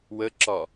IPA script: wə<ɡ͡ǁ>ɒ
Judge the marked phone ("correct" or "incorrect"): incorrect